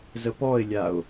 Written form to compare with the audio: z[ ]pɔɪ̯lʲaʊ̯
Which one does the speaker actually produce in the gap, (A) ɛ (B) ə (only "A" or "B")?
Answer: B